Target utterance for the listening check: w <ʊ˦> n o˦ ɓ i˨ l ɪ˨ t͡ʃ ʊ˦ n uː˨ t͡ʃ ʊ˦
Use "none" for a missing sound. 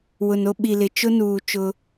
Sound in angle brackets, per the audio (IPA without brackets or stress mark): ʊ˨